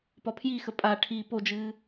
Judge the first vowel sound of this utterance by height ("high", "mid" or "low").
low